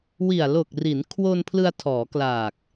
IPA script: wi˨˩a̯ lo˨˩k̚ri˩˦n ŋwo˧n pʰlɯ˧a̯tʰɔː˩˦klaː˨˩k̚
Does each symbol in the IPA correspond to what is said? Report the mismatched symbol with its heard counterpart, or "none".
ŋ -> kʰ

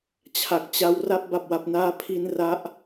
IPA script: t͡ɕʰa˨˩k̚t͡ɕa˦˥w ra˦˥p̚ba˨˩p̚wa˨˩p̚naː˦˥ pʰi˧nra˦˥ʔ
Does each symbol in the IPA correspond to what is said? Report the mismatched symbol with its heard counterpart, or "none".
none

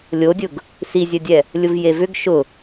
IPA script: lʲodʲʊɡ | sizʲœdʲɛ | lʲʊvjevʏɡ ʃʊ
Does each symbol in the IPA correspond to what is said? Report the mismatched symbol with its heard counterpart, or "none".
none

